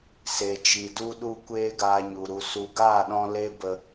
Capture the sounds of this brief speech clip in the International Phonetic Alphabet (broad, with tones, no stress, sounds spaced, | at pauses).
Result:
s e˨ t͡ʃ i˨ d u˧ ɗ u˧ kʷ eː˦ ɡ aː˧ ɲ u˨ ɾ u˨ s u˨ ɡ aː˦˨ ɗ ɔ̃˧ l e˦ b ə˧